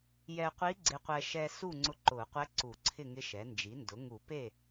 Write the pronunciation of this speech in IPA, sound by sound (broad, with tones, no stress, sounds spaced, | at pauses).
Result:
j ɛ˧ qʷ i˧˥ ɡ͡ǀ ɪ˧ qʷ ɛ˧ ʃ ɛ˧ s u˥˨ ŋ͡ǀ ʊ˧˥ ǃ ʊ˨˩˦ qʷ ɛ˧˥ ǀ u˨˩˦ ǀʰ ɪ˥˨ ŋ ɪ˧˥ ʃ ɛ˩˥ n d͡ʒ i˩˥ n d ʊ˩˥ ŋ u˨˩˦ p e˥˨